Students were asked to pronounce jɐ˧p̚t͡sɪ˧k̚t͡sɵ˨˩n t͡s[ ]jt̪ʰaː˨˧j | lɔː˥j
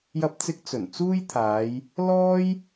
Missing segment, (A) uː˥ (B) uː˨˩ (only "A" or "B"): A